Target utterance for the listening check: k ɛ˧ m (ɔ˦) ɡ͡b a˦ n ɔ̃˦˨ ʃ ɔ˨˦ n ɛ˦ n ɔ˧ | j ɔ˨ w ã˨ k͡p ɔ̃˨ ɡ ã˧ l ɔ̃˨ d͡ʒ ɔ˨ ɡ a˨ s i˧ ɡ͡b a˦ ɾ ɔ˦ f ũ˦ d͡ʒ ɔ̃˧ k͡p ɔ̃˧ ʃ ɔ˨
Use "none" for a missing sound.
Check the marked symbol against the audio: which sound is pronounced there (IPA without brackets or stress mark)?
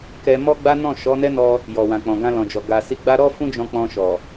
ɔ˦